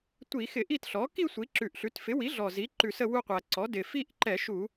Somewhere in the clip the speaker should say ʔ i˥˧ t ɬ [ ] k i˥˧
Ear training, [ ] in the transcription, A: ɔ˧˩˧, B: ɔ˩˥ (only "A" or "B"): B